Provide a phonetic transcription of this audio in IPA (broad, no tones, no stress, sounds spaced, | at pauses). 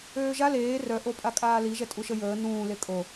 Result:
øː ʒ a l eː r œ ʔ o pʼ a kʼ aː l i ʒ ɛ tʼ u ʃ ə j əː n ũː l e kʼ o